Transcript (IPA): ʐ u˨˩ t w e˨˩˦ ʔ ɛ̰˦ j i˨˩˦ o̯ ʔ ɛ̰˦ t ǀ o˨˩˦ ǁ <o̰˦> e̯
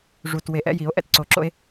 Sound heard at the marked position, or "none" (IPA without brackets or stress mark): o̰˦